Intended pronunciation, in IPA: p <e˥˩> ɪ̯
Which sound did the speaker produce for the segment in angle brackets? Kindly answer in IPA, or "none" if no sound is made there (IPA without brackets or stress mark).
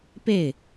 e˥˩